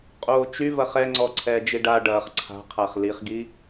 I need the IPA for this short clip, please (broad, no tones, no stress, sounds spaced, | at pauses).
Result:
qʼ oː t͡ʃ y v ɐ χ ɛ ŋ͡ǀ ɔ ǀʰ ɛː d͡ʒ i ɖ a ɖ ɐː χ ǀʰ a̤ qʰ a χ l i χ ɡ i